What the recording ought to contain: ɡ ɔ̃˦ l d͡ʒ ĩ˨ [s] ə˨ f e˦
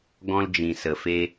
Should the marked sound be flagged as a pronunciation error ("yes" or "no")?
no